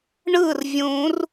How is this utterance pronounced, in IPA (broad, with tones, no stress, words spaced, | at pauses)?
ɳɯ˥˩rvʲũ˨˩˦r